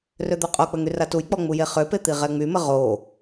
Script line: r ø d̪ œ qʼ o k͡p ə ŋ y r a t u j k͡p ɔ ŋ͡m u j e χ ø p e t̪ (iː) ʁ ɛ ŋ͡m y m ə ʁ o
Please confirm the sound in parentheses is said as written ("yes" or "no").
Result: no